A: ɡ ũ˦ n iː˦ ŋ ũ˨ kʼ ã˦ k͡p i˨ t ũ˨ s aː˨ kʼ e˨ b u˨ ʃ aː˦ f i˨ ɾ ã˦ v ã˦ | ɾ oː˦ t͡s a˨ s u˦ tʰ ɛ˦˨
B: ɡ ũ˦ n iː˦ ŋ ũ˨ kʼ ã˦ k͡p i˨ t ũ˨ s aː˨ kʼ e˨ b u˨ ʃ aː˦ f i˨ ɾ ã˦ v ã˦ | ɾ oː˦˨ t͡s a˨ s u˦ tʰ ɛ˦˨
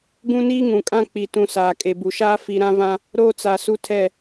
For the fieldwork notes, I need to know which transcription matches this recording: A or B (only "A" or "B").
A